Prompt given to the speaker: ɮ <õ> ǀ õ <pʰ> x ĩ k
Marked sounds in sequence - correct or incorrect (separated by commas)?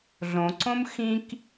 correct, incorrect